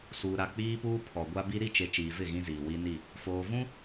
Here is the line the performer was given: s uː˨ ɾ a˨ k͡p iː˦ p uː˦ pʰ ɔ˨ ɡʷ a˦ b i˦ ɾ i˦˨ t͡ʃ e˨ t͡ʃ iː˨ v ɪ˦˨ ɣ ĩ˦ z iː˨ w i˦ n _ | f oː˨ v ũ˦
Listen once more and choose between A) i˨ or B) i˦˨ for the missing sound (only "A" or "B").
B